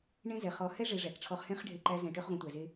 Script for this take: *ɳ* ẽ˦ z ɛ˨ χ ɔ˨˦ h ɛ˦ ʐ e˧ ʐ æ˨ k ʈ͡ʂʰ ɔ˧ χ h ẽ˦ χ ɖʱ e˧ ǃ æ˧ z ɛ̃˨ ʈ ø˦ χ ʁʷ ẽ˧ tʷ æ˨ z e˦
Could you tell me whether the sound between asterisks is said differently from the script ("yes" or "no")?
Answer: no